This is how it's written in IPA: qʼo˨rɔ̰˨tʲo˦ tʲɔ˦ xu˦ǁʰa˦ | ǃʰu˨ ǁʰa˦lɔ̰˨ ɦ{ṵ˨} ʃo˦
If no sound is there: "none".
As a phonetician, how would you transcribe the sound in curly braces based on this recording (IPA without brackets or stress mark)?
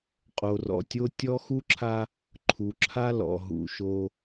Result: ṵ˨